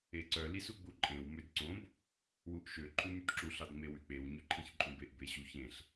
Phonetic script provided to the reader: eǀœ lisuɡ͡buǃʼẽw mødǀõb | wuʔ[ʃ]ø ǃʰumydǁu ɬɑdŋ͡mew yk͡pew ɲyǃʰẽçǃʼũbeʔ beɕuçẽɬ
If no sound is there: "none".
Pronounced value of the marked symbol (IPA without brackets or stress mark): ʃ